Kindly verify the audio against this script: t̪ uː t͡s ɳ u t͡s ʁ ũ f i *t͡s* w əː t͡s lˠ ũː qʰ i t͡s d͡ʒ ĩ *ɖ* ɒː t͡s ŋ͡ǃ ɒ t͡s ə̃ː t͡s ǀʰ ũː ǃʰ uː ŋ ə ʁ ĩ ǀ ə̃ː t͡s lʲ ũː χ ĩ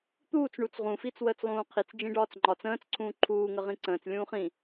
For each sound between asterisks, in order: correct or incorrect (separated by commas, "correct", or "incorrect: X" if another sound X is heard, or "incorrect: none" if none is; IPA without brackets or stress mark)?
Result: correct, correct